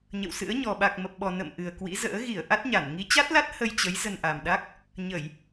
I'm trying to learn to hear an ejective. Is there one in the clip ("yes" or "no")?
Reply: no